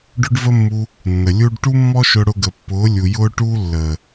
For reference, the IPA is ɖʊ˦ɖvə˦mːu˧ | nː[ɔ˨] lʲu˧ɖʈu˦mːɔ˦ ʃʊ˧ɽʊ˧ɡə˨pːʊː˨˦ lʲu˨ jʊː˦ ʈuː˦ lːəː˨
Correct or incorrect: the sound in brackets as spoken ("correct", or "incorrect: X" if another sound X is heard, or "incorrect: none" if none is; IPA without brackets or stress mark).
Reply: incorrect: ə˨